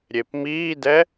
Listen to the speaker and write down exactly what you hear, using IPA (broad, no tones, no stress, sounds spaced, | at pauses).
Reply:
ɾʲ e p m iː d ɛ